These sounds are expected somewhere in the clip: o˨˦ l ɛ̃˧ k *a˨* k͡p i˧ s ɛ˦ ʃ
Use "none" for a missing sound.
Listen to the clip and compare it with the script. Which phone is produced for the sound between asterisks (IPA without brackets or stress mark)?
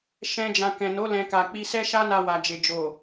a˨